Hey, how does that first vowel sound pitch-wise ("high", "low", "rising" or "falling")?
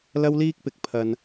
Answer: high